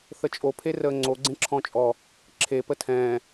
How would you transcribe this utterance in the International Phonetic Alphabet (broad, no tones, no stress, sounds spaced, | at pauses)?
θ ə t͡ʃʼ o pʰ e r əː ŋ͡ǀ o ɡ͡ǀ ẽ ǁʰ ɔ̃ t͡ʃʼ ɔ | ǁʰ e p ə tʰ ɛ̃ː